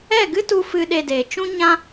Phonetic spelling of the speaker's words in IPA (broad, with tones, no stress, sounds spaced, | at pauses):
ɛ˦˨ ɡ ɨ˦ t u˧ f ɨ˧ ɗ e˧ d eː˨ t͡ʃ ũ˦ ɲ ã˦